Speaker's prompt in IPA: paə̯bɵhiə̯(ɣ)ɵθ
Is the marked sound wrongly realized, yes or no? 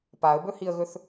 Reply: no